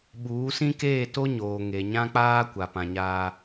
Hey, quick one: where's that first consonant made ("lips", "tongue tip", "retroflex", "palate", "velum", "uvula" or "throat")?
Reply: lips